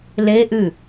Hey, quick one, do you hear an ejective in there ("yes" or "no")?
no